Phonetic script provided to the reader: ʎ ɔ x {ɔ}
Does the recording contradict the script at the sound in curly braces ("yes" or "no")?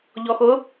yes